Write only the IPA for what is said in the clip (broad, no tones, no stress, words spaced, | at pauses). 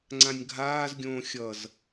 ŋ͡ǀãnʲɡʱaːzɡʲõː xʲʌz